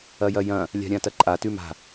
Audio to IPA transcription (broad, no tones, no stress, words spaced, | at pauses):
ɐjɐjɐ̃ | lʲa̤ɾʲãtɐǃʼa tʉma̤